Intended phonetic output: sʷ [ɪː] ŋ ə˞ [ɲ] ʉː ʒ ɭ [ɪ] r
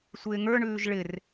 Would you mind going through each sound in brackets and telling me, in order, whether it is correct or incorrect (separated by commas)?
correct, incorrect, correct